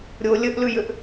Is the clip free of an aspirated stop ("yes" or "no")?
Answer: yes